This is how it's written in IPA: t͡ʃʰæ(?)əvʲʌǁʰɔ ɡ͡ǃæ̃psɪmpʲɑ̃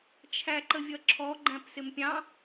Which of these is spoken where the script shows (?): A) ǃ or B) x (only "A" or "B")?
A